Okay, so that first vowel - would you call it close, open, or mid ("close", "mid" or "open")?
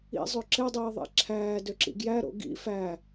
close